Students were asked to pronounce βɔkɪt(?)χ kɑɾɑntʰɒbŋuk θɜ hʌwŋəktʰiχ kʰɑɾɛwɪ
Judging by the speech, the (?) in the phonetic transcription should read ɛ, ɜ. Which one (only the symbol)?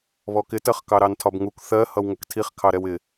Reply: ɜ